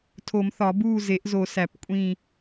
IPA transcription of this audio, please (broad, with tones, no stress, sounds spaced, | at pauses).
tʰ o˨˩˦ m θ ɒ˨˩˦ b uː˦˨ z e˨˩˦ ʔ z o˨˩˦ s æ˨˩˦ p kʷʼ ĩ˦˨